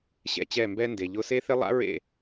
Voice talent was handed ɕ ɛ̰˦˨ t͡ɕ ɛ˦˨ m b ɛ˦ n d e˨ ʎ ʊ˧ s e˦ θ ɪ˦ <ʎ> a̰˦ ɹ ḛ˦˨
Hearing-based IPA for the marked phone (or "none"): lˠ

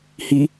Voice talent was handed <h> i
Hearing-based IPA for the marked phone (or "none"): h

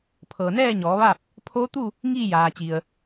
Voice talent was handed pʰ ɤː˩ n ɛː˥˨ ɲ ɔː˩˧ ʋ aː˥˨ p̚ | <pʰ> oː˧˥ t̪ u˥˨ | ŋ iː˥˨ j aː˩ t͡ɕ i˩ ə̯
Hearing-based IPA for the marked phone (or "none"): pʰ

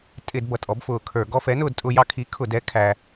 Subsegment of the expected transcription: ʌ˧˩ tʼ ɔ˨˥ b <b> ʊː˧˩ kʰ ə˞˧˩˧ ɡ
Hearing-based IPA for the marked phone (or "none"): f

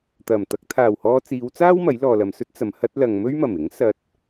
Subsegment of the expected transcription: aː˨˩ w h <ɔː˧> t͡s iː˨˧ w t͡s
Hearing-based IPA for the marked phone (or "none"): ɔː˧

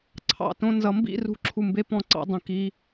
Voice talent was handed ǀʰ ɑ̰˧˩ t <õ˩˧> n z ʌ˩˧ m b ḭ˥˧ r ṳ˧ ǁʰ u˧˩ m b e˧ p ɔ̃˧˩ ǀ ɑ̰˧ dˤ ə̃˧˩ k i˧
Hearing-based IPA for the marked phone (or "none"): õ˧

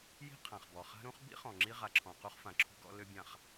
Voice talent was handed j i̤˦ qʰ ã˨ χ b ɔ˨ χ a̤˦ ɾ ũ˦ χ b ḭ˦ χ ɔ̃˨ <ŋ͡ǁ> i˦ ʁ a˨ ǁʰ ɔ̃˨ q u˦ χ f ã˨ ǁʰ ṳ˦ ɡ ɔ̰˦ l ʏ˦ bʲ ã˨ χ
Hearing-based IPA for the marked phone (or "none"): ŋ͡ǁ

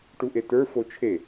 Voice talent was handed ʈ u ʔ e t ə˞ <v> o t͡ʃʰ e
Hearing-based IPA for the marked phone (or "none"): f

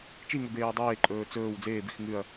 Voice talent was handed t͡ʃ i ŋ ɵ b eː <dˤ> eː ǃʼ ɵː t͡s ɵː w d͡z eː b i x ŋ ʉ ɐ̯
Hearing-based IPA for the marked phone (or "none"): dˤ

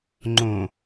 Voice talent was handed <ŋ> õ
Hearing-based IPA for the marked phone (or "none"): ŋ͡ǃ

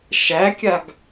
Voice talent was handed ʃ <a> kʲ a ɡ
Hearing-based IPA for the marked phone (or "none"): æ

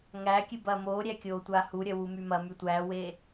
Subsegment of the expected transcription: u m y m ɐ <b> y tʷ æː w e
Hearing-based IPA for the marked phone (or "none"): m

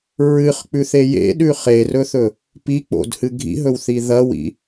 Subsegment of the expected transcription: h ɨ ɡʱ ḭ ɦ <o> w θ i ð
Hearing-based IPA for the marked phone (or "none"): ɵ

